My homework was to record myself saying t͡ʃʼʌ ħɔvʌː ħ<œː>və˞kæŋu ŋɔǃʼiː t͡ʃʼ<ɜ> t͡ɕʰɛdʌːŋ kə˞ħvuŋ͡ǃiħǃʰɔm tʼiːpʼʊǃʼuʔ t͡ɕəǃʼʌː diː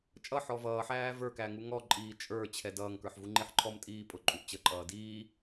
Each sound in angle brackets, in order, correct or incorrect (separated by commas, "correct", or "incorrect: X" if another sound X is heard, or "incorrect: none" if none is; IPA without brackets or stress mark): incorrect: æː, incorrect: ə˞